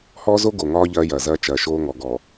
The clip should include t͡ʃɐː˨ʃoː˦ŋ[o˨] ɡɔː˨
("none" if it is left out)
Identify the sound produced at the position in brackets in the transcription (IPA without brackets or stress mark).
ɔ˨